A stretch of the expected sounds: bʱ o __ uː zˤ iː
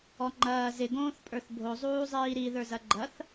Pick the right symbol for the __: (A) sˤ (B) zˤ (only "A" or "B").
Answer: B